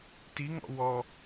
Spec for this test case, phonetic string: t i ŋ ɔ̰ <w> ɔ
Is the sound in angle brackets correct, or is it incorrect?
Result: correct